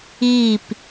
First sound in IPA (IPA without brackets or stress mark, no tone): iː